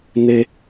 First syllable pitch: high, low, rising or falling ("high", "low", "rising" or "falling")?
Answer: low